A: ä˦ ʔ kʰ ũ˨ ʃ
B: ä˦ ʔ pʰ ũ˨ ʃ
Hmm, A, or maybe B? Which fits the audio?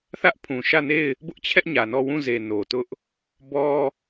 B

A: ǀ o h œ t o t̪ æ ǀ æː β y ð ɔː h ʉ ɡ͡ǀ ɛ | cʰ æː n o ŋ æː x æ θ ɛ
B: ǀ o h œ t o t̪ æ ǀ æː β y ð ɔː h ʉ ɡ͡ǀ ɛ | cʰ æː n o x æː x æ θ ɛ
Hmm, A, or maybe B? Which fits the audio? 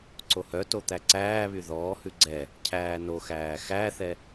B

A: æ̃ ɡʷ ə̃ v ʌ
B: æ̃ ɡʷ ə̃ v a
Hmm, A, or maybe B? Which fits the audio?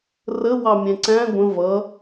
A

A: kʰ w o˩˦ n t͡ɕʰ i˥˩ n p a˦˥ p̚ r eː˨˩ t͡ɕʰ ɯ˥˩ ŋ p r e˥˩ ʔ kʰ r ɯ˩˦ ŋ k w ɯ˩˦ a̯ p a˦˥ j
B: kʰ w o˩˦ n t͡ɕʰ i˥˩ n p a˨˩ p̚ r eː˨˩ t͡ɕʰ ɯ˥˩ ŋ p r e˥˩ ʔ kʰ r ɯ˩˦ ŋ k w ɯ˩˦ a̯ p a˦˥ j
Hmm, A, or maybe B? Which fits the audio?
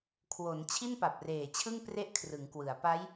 B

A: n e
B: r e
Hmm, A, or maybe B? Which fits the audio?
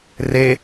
B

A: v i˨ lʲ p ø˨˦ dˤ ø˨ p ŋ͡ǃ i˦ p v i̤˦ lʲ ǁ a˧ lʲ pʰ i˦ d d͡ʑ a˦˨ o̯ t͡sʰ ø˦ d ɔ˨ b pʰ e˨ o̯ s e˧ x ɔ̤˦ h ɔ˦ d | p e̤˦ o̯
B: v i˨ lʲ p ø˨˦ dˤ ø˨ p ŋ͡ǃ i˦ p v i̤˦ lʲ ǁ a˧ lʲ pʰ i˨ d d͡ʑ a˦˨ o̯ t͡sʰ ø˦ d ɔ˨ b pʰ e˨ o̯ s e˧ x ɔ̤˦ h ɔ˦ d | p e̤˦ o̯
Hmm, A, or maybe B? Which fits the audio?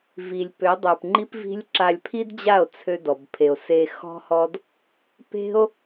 A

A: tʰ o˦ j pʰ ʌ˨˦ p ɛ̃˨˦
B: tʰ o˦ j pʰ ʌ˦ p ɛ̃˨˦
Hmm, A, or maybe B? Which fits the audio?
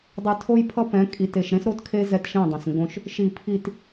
B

